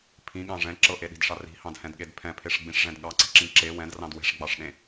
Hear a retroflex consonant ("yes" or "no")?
yes